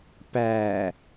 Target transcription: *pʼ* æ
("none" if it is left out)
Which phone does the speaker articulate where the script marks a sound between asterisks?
p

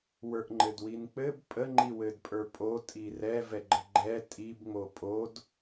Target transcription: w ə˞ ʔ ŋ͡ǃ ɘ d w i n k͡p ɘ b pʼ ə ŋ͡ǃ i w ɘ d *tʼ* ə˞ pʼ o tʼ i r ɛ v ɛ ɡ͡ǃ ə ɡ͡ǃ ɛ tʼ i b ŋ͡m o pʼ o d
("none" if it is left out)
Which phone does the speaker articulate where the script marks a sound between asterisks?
pʼ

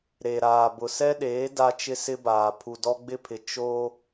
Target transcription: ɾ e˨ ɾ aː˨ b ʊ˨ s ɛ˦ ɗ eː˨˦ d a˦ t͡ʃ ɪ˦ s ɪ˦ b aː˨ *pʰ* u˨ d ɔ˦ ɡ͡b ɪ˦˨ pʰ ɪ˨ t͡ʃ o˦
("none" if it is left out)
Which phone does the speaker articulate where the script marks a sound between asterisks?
pʰ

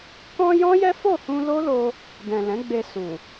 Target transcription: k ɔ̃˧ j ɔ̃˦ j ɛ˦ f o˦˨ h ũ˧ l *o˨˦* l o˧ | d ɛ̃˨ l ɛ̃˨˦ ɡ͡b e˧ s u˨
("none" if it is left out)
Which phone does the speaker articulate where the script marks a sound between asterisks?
o˦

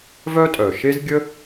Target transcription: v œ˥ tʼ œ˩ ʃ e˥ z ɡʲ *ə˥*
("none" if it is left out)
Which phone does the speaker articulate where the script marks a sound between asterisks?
ə˥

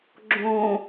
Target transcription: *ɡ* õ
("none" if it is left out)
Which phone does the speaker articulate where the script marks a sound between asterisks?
ɡ͡ǁ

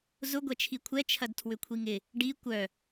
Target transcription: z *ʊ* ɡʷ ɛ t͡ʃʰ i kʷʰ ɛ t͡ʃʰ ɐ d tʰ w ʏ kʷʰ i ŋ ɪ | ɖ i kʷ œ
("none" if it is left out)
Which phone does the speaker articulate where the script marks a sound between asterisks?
ʊ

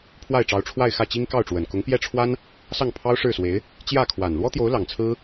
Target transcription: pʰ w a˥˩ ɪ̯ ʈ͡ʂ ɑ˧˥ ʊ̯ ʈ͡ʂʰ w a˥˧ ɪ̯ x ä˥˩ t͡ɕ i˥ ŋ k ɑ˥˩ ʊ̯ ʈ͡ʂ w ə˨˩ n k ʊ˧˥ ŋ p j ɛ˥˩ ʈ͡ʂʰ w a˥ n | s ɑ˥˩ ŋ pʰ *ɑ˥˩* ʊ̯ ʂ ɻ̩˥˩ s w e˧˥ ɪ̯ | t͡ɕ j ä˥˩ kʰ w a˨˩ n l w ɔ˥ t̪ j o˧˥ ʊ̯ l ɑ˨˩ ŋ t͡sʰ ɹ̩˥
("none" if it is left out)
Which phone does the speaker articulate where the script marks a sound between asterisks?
ɑ˥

